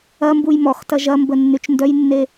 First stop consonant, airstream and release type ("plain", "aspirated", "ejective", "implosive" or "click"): plain